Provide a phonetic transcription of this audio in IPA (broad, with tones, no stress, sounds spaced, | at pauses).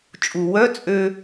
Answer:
t͡ʃʼ u˩ w œ˧˥˧ t͡sʼ ø˧